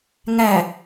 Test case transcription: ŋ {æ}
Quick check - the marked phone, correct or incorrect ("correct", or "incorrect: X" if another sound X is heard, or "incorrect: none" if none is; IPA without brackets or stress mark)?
correct